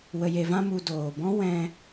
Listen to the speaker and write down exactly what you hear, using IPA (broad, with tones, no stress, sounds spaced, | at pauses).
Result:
w ə˧ j e˧ v ã˦ m u˧ d oː˨ b ɔ̃˦ w ɛ̃˧